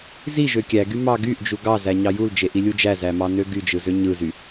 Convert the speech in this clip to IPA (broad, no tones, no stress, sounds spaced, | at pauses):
z i ʒ ø kʲ æ ɡ y m ɑ ɡ y ʔ d͡ʒ u ɡ ɑ z æ ɲ ɑ j u l d͡ʒ e ʔ i lʲ u d͡ʒ æ z æ m ɑ n ø ɡ y d͡ʒ ɯ z ø ɲ ɯ z y